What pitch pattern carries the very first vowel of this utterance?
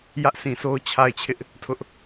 high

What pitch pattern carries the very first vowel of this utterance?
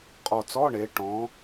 low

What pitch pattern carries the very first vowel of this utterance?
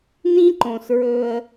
high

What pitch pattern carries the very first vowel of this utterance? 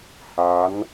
rising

